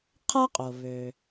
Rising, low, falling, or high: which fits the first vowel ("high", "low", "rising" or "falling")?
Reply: high